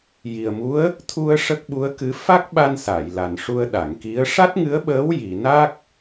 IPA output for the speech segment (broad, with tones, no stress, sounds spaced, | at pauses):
j i˨˩ ə̯ m u˧˥ ə̯ | t̪ʰ u˧ ə̯ ʂ ə˦˥ k̚ ɓ u˧˥ ə̯ k ɨ˧˥ f a˦˥ k̚ ɓ a˧ n s a˨˩˨ j l a˨˩ n ʂ u˧ ə̯ ɗ a˨˩˨ ŋ k i˧˥ ə̯ ʂ a˦˥ t̚ ŋ ɨ˧˥ ə̯ ɓ əː˧˥ w j i˨˩˨ n a˦˥ k̚